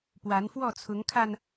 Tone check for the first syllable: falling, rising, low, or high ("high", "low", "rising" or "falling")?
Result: rising